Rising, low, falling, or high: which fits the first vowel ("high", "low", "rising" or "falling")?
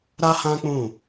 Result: high